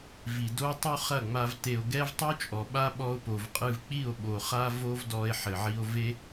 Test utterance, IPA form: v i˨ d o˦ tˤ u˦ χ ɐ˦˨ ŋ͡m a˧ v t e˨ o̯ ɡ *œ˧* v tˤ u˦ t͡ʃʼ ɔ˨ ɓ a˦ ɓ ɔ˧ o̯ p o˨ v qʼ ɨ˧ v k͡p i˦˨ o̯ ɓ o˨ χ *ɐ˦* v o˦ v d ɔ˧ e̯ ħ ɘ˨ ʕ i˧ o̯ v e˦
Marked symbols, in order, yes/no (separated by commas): no, no